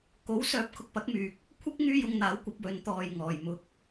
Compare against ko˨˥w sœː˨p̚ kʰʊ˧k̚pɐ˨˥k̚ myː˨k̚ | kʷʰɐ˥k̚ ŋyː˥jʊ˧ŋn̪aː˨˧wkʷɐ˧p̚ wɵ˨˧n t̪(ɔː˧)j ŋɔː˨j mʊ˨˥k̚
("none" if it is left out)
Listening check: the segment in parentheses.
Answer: ɔː˨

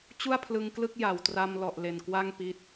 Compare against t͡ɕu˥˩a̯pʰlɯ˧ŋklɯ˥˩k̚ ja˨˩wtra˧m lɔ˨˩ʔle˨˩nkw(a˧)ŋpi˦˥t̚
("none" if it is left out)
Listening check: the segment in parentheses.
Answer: a˥˩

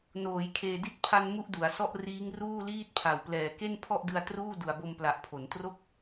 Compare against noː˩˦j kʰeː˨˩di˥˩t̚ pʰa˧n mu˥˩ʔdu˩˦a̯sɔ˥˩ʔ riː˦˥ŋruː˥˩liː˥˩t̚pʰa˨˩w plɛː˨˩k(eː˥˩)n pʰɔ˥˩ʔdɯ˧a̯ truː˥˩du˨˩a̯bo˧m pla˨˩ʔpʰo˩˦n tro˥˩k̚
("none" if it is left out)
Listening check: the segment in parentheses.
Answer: e˥˩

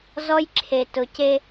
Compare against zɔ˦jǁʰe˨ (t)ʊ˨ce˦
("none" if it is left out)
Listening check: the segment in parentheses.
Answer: t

